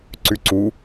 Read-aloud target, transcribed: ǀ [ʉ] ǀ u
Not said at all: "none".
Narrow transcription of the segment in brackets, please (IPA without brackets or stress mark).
ʉ